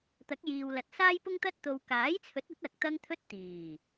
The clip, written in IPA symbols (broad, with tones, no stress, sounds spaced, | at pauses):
t̪ ɐ˨˥ k̚ j iː˨ w l ɐ˨ t̚ s aː˥ j p ʊ˥ ŋ t̪ ɐ˥ t̚ t̪ o˨ w k aː˨˥ j t͡sʰ ɵ˨˥ t̚ ɐ˨˥ t̚ ɐ˨ k̚ t̪ ɐ˥ ŋ t̪ʰ ɵ˥ t̚ t̪ iː˨˩